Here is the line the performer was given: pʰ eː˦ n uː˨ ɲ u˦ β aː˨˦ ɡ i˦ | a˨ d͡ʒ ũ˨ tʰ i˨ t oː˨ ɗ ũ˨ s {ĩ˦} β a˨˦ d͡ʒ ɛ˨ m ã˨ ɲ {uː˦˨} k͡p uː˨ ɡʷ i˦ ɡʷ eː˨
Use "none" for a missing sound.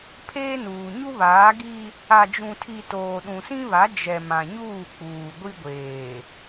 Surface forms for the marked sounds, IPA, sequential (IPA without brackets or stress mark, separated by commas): ĩ˦, uː˦˨